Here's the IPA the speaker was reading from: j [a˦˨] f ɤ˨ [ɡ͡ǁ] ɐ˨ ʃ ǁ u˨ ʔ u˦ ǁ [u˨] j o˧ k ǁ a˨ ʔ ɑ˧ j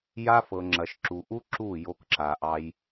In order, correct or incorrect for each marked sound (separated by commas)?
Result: incorrect, incorrect, incorrect